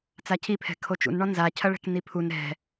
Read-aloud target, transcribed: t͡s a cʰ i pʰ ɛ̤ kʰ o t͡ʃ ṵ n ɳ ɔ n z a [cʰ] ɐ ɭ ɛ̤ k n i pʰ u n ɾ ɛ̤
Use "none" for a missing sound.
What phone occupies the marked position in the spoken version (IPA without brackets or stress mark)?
cʰ